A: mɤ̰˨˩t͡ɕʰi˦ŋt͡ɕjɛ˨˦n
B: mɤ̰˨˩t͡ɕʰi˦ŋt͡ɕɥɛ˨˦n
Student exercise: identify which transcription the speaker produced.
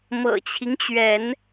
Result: B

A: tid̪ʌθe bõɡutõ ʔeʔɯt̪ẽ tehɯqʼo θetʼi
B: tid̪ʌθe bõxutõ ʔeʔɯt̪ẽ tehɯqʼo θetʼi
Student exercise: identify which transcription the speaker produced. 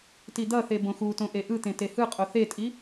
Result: B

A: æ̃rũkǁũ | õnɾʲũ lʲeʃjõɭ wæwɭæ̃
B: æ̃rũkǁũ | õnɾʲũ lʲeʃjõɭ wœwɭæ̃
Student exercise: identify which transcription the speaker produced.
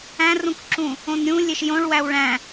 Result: A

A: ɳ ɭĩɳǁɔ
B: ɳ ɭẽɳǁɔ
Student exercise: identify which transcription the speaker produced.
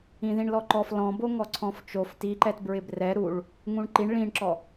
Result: A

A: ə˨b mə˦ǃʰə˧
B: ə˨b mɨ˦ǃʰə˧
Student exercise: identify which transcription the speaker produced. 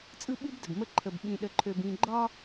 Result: A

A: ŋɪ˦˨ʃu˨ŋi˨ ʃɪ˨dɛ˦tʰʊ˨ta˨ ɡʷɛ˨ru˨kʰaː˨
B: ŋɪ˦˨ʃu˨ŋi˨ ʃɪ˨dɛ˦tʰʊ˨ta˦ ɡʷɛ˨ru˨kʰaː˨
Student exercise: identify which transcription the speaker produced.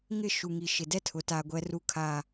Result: A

